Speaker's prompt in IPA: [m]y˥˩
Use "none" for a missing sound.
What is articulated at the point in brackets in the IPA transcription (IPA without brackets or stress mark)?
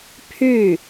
pʰ